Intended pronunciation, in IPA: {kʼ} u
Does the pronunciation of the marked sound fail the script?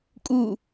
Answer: no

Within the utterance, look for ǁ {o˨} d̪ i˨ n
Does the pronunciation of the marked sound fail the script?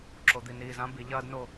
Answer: no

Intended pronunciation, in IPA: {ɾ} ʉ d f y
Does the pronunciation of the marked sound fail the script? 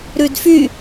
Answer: no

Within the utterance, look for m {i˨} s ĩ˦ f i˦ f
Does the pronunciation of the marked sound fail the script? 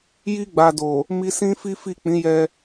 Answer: yes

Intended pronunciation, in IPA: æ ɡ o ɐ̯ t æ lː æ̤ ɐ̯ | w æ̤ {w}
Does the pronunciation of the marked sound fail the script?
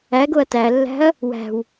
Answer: no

